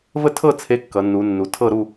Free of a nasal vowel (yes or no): yes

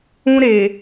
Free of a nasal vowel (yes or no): no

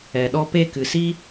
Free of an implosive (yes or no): no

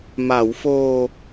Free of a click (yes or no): yes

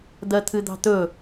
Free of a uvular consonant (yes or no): yes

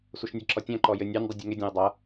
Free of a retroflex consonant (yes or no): yes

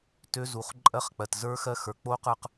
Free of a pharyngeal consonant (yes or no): yes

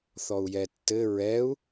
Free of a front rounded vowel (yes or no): yes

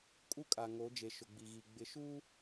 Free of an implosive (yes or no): yes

